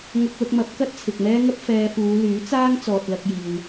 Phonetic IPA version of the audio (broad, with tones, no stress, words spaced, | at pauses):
ŋʊ˧k̚lʊ˧k̚mɐ˨˥p̚ kɐ˥t̚t͡sʰɪ˨k̚mɛː˥ŋɐ˥p̚ fɛː˧fuː˨˧ lyː˨˥t͡saː˥ŋ t͡sɔː˨t̚lɐ˧k̚jiː˨w